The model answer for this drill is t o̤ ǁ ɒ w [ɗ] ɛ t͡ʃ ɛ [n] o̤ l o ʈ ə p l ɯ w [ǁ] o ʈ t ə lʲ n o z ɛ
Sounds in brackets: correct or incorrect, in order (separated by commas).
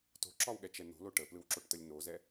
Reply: incorrect, correct, correct